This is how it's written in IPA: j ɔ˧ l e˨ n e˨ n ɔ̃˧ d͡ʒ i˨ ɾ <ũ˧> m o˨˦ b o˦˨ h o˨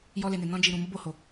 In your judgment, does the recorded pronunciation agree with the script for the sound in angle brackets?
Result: no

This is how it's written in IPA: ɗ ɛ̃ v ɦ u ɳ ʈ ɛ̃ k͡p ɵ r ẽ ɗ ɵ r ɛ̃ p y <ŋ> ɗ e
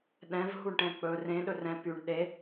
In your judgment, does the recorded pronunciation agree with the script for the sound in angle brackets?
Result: no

